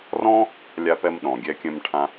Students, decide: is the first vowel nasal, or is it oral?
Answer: nasal